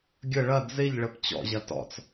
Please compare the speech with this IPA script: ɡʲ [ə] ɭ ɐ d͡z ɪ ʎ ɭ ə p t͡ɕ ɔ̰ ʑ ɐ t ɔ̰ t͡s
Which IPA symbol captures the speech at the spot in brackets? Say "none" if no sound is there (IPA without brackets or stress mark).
ə